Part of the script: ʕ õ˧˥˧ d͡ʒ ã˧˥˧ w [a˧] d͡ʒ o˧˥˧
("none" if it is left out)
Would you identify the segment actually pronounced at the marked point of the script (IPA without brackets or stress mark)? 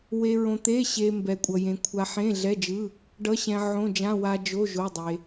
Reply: a˧